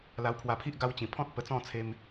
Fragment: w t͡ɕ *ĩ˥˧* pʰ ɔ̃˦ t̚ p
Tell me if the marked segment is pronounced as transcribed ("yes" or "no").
no